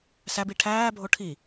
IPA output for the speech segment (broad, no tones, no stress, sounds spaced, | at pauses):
s æ b i ʈʰ æː bʱ o ʈʰ i